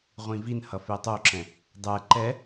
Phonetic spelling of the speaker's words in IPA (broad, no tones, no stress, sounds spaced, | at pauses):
ʁʷ ĩ v i n h ʌ f e tˤ o ǁ ɛ̃ | dˤ ɛ ǃ ɛ